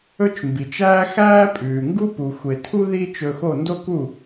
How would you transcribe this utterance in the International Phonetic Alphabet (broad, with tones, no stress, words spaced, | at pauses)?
ɵ˥t͡ʃmbi˩t͡ʃæː˥ xæː˥pʼʉː˩ŋɡu˥ pu˩xʷe˩tʰu˥ ði˥t͡ʃɵ˧xo˥˩ ndo˥ku˥˩